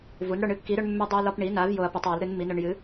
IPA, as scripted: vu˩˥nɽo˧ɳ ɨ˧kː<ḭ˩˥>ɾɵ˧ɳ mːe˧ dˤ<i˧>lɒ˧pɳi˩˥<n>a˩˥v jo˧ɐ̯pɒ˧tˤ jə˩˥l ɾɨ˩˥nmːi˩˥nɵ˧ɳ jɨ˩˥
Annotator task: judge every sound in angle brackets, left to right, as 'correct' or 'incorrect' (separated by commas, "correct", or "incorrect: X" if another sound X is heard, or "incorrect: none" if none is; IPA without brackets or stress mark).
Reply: incorrect: i˩˥, correct, correct